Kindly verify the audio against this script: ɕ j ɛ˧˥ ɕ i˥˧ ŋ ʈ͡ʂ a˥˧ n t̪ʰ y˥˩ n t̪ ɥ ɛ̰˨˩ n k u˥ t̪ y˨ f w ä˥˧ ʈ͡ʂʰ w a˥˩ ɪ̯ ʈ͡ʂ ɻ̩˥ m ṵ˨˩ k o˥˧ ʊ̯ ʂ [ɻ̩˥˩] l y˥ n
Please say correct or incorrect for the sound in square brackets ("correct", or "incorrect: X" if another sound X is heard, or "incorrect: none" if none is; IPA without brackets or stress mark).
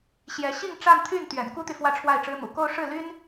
correct